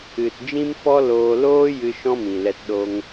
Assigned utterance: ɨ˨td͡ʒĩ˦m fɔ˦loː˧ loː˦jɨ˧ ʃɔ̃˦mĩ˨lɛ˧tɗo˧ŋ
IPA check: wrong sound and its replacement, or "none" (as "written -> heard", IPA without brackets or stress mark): none